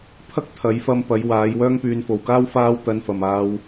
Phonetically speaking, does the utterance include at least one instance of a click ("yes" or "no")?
no